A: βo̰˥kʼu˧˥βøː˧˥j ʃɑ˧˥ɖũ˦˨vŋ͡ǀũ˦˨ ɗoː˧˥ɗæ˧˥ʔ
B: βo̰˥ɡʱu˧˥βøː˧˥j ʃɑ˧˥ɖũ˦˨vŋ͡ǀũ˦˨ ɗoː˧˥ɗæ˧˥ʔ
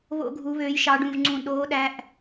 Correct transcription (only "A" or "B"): B